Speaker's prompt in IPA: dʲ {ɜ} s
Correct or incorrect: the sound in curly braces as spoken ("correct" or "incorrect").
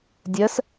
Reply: correct